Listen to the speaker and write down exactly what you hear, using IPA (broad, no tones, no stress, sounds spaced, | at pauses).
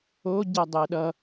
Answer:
o ɟ ɛ dˤ e ɗ ʌ